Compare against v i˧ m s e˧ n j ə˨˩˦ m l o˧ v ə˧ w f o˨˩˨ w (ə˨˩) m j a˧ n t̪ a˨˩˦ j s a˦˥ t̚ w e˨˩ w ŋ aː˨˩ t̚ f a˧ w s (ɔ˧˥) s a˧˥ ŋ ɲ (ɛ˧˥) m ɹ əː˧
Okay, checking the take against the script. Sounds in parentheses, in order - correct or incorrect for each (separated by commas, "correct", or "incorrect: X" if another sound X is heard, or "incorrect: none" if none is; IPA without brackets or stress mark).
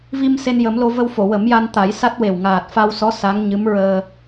incorrect: ə˨˩˦, correct, incorrect: ɨ˧˥